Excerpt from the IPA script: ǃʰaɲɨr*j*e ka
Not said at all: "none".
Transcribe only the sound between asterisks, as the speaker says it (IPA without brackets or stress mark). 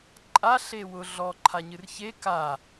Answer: ç